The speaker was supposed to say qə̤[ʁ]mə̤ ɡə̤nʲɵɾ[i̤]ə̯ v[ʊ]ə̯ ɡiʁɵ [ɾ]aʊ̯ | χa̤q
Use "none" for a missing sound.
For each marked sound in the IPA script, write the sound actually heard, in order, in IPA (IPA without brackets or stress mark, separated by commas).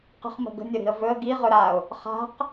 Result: χ, i̤, ɵ, ɾ